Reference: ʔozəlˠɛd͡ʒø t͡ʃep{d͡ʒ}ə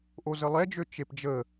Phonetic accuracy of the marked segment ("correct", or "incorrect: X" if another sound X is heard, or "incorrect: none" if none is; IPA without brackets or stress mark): correct